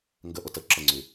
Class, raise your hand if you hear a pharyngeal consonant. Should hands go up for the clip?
no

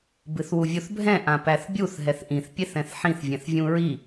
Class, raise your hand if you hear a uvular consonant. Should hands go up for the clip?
no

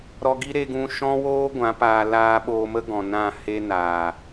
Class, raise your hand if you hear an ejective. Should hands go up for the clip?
no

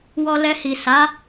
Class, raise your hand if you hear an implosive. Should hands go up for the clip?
no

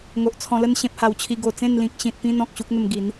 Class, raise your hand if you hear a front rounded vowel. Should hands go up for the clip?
no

